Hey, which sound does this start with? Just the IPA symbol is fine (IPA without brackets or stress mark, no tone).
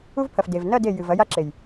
u